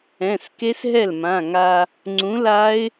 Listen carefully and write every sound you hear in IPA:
ɛ̃˩˧˩ s k e˦˥ s ɦ ɛ˥˩ l m ã˩˧˩ ŋ a˧ | ŋ͡ǀ ũ˨˥ l a˦˥ ɪ̯

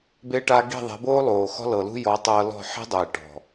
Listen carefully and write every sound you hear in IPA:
b e˧ ʈ a˧ ɡ i̤˦˨ ðˤ ɛ̤˨˦ b oː˦ lˠ oː˨ x ɔ̤˧ l ɤ˨ l ṳ˧ j ɔ˨˦ tˤ ɤː˧ l ɔ̤˦˨ ħ i̤˦ dˤ eː˨ ʈ ɔ̤˨

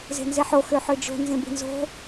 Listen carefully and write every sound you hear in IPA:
z e̤ n z e ħ o x ø ħ ø d͡ʒ o̤ n z ẽ b i̤ n z o̤

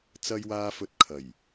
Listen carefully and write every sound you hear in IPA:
t͡s ɐ˥ j w aː˥ f ɵ˧ t̚ kʰ ɐ˨˩ j

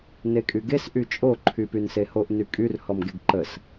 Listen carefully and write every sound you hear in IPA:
n e kʼ y ɡ e s ʔ y t͡ʃʼ o ǃʰ y p y n s e h o ʔ n y kʼ y r h ɔ m ɡ e ɡ ǃ ə s

